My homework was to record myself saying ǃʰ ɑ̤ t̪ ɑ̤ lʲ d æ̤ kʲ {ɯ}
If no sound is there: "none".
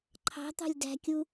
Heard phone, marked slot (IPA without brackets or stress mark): u